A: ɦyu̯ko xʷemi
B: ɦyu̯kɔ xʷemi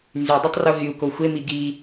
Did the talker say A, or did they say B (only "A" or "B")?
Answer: A